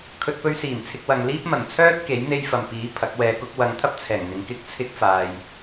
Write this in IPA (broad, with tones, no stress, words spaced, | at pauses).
kʰɵ˧t̚pɵ˥ɥ siː˨˩mt͡sʰɪ˧k̚ wɐ˧ŋ liː˥p̚mɐ˨˩n t͡sʰœː˥t̚ ke˨˥jn̪e˥jfɐ˨m piː˨˥ pʰɐ˨˥k̚wɛː˧ kʊ˥k̚ wɐ˨˧ŋt̪ʰɐ˥p̚ t͡sʰɛː˨˩ŋn̪ɪ˨˧ŋ kɪ˥k̚t͡sʰɪ˥k̚ faː˧j